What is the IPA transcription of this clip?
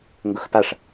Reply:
ŋɡʊxpaʂ

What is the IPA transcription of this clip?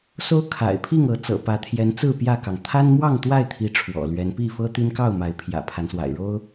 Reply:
so˦ʊ̯kʰa̰˨˩ɪ̯pʰi˥˨ŋ ɤ˨˦t͡sɤ̰˨˩pä˨˦ t̪ʰjɛ˨˦nt͡sɹ̩˥˨ pjä˥˨kɑ˩ŋ t̪ʰa˦nmwɑ˥˨ŋ t̪wa˥˨ɪ̯t̪ʰi˨˦ ʈ͡ʂʰwɔ̰˨˩lɥɛ˨˦n pi˥˨ fɤ˦t̪i˦nkɑ˥˨ʊ̯ ma˨˦ɪ̯pʰjä̰˨˩ pʰa˨˦nswa̰˨˩ɪ̯ ɻo˦ʊ̯

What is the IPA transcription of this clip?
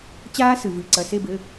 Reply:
t͡ɕaː˦˥sɨ˩vɨ˩˧˩ ǀɐ˩˧˩se˦˨bɘ˩˧˩

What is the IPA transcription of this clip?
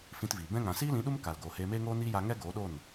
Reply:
fĩ˧tviː˨ bɛ̃˦ ŋã˨siː˦lĩ˨˦ɗu˦m ka˨lɡoː˨heː˧ meː˦ŋoː˦niː˦ja˧ ŋɛ˦ɡoː˨˦ɗo˦˨n

